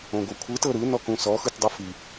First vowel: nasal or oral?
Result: nasal